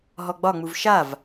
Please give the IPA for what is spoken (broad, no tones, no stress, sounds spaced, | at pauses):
ɦ ɔ ɡ͡b ɒ ŋ͡m u v ʃ a v